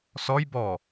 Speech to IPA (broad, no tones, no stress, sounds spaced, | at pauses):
s ɔ j b ɔ